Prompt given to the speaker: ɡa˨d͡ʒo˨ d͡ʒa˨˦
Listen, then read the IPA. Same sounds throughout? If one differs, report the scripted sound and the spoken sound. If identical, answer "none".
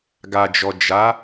o˨ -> ɔ˨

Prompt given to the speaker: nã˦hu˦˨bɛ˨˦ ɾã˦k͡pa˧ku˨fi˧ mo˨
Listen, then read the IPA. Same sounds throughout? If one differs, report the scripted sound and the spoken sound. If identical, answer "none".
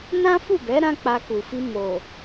h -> f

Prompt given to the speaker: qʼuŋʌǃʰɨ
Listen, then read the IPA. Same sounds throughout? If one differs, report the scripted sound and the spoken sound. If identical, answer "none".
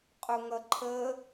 ɨ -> ə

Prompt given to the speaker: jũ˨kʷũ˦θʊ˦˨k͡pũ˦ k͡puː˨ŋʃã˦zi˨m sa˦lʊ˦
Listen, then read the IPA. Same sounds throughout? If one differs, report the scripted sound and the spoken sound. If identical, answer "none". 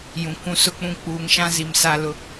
θ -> s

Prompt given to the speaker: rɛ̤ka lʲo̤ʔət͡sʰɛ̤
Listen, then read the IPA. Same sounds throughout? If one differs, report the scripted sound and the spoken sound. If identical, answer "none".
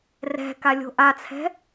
ə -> a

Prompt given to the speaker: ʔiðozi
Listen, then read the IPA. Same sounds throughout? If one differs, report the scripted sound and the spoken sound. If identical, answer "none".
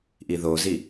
none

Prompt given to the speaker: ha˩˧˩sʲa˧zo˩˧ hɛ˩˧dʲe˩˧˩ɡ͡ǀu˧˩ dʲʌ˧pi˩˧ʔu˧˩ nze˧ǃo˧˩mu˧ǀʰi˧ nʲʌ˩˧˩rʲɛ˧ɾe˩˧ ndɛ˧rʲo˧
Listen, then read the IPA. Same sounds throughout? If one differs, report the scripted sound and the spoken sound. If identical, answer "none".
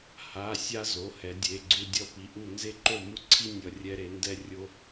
none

